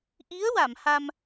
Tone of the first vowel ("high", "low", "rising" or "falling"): rising